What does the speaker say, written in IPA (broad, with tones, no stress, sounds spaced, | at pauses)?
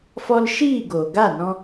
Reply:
f ɔ˧ l ʃ iː˦˨ ɡ oː˨ ɡ a˦˨ n ɔ̃˧